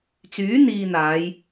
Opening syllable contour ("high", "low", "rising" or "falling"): rising